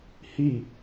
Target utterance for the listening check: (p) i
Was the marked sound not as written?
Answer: yes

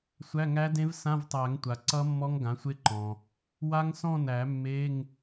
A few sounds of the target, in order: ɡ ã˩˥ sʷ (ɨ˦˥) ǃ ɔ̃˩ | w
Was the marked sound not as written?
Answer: yes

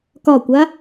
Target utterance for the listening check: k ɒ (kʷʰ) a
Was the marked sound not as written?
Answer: yes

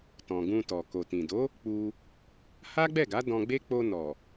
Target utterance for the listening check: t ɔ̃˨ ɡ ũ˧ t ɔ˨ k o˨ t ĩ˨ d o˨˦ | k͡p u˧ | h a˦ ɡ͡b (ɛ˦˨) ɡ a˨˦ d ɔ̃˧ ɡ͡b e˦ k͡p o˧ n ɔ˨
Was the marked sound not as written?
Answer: no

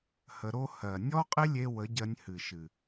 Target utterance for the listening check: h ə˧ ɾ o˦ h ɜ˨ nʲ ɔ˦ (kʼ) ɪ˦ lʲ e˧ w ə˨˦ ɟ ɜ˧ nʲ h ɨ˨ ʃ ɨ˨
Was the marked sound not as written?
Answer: yes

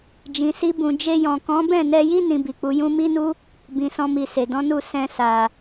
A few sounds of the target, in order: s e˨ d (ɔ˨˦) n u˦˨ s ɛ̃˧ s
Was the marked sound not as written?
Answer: yes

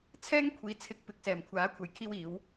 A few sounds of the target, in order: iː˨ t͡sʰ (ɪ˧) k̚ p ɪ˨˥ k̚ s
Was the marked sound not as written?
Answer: no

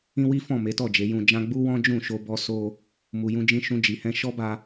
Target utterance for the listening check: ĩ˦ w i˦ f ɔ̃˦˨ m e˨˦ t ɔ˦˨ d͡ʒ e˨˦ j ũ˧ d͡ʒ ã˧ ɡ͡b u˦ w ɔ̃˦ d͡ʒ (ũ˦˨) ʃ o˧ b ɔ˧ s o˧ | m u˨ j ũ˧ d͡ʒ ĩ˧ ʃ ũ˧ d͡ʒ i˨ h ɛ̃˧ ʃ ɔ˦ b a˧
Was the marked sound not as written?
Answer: no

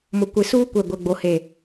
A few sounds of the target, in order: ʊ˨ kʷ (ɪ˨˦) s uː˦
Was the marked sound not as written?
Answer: no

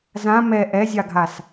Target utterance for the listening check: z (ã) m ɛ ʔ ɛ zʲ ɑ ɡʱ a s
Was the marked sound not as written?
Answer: no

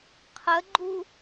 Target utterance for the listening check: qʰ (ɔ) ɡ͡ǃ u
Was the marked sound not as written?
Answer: yes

